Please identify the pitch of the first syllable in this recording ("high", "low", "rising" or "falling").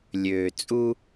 low